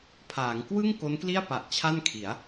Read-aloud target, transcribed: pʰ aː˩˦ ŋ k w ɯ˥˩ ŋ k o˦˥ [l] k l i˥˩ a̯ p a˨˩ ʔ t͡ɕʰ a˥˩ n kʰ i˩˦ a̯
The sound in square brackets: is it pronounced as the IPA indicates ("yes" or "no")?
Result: no